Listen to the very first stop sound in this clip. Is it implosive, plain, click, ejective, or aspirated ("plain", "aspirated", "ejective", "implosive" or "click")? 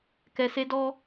plain